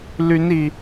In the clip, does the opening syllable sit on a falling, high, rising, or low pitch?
rising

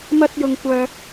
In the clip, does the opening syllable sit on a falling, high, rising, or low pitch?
high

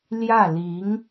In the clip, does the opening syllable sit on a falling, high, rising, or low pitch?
falling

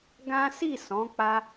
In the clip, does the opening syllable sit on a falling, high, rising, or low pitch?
high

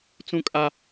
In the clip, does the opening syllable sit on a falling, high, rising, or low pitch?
high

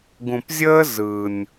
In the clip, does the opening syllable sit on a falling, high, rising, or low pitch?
low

